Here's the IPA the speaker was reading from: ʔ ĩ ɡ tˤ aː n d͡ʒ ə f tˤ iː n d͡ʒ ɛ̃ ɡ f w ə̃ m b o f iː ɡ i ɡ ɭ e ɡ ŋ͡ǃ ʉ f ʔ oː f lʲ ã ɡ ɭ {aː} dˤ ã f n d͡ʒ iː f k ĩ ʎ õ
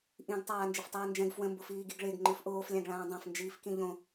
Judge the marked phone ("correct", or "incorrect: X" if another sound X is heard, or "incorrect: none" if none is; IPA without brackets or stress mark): incorrect: ãː